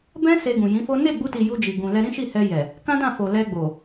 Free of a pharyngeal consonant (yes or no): yes